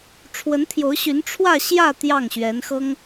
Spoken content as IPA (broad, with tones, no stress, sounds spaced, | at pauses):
ʈ͡ʂʰ w ə˧˥ n t̪ʰ j o˧˥ ʊ̯ ɕ y˧˥ n ʈ͡ʂʰ w ä˥˧ ɕ j ä˥˧ t̪ j ɑ˥˩ ŋ ɕ ɥ ɛ˧˥ n x ɤ˥ ŋ